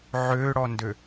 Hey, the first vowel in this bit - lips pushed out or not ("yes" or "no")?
yes